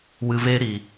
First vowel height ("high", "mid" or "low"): high